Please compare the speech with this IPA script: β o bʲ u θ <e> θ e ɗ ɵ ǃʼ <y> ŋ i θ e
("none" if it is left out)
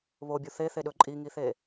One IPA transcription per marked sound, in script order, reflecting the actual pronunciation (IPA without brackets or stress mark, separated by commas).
e, i